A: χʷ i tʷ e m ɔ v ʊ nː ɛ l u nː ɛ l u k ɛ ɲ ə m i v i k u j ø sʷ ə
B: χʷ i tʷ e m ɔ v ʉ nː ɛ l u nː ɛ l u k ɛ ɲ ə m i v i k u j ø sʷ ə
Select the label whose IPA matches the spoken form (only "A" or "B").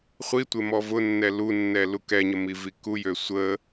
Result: A